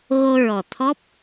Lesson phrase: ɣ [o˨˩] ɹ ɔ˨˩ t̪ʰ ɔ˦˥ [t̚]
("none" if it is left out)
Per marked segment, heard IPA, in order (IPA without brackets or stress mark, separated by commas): o˧, p̚